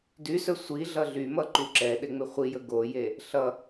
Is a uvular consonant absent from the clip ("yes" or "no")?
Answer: no